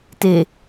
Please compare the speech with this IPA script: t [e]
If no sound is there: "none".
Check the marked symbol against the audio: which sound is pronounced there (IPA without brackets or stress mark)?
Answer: e